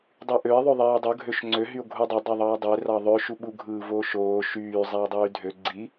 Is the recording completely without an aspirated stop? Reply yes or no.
yes